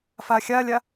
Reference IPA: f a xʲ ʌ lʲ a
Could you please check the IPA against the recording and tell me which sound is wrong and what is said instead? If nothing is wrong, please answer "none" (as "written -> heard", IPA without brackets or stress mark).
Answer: ʌ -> a